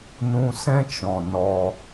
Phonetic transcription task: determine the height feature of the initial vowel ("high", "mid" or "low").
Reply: high